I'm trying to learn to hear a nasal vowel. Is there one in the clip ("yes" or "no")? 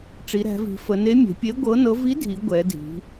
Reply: no